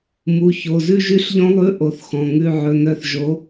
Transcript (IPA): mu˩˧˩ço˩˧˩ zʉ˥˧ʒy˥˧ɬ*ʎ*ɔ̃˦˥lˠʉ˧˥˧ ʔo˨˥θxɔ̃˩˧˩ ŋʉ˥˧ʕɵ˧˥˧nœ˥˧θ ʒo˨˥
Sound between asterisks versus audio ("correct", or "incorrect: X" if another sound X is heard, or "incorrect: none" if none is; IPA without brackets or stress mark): correct